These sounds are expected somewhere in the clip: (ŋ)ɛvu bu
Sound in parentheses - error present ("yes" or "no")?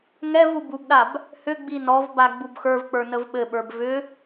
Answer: no